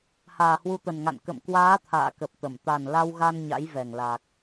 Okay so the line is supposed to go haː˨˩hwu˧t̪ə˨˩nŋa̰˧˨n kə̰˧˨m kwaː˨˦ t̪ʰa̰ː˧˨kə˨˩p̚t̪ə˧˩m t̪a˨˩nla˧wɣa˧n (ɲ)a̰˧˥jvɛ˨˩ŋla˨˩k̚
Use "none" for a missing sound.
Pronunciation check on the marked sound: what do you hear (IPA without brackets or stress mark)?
ɲ